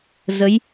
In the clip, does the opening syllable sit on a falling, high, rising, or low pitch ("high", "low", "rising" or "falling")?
rising